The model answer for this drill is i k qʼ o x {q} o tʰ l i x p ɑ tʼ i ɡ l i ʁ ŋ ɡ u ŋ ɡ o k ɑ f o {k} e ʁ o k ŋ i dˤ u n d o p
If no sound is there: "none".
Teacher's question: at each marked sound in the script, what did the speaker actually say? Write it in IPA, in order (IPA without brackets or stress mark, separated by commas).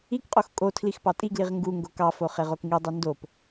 kʼ, χ